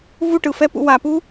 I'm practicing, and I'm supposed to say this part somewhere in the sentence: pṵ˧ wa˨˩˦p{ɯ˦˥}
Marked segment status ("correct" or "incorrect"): incorrect